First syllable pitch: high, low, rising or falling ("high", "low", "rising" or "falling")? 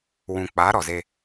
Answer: low